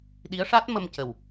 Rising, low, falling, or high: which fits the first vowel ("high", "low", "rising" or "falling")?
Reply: rising